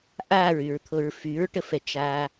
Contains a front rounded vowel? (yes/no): yes